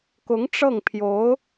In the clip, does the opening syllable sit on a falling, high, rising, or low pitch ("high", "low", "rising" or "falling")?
rising